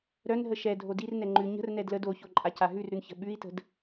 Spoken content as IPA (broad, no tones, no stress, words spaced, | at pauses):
ɾœnɦə ʃɛdʱo dirnɛ ŋ͡ǃʉ ɲə̤rnɛ dləd oço ǃʼacaɦʉrɾʉn çə̤ɓʉi̯tə̤d